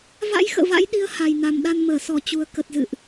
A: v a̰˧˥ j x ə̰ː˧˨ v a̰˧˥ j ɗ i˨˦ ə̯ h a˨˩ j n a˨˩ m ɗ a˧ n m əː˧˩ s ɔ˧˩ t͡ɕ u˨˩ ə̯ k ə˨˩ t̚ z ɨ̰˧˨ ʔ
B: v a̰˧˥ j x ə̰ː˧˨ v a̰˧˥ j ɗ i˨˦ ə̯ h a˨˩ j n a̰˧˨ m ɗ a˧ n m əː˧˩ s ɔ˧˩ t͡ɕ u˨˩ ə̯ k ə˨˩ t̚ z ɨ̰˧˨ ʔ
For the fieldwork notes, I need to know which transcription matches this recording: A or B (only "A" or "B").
A